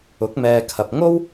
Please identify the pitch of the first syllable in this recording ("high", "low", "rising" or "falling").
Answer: rising